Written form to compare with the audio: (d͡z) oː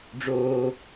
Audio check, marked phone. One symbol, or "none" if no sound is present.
ɖ͡ʐ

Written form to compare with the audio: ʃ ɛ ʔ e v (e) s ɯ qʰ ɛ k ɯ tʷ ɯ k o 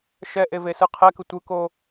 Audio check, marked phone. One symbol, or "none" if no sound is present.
e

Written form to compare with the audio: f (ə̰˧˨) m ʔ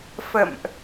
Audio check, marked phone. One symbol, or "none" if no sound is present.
ə̰˧˨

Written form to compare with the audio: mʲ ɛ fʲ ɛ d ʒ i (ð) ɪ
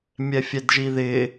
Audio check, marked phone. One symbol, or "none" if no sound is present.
ð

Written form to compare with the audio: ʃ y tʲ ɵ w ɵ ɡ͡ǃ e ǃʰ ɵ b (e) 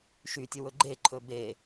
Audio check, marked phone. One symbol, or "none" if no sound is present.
e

